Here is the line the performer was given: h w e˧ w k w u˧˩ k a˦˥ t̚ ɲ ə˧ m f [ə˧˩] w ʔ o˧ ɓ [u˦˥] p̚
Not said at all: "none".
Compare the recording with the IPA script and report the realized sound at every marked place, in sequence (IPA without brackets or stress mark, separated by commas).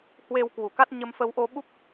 ə˧, u˦˥